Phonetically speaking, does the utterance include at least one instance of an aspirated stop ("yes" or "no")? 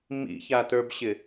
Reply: no